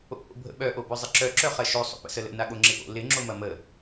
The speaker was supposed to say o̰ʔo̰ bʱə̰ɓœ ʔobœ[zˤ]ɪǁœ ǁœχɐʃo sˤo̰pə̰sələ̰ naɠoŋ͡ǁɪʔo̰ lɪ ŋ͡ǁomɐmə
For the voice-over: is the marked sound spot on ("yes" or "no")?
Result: yes